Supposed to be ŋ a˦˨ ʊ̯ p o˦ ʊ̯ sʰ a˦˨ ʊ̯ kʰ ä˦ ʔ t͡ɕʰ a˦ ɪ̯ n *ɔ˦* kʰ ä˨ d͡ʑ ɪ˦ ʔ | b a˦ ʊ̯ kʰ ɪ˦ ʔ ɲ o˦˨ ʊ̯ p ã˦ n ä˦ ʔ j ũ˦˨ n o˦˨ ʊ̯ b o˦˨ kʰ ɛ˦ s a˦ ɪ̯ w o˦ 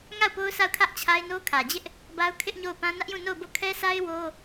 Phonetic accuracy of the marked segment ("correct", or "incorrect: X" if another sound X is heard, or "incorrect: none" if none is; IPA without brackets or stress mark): incorrect: o˦